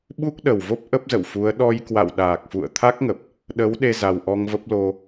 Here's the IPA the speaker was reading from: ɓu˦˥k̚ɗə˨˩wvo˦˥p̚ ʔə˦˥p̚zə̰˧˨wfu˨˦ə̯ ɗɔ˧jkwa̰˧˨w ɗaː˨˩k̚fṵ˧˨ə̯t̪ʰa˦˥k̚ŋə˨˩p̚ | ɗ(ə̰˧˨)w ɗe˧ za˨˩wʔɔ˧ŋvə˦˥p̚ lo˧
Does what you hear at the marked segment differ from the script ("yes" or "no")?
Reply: yes